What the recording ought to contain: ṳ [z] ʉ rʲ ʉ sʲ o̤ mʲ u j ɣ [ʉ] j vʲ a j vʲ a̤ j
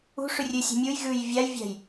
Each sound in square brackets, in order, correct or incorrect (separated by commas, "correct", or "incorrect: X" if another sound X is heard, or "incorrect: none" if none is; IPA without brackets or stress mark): incorrect: ʂ, correct